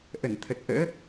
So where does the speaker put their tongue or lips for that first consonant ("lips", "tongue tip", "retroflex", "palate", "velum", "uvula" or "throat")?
throat